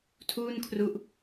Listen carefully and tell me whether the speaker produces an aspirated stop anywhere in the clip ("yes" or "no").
yes